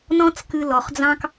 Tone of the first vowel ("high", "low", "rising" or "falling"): high